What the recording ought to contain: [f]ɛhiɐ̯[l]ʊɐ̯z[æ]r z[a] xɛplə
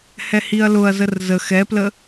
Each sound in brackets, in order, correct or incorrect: incorrect, correct, incorrect, incorrect

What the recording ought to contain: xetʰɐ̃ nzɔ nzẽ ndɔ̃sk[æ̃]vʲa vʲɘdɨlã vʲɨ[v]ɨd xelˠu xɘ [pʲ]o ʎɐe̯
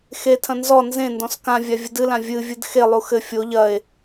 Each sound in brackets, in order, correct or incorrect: incorrect, incorrect, incorrect

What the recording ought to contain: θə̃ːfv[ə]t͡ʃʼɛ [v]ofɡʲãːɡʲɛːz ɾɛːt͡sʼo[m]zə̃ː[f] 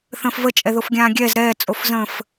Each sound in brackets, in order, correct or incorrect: correct, incorrect, incorrect, correct

